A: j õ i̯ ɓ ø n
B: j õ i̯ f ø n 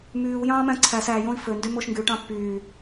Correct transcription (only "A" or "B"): B